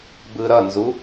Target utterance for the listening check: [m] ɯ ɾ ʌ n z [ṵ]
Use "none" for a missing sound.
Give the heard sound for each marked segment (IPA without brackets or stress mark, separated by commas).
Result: b, u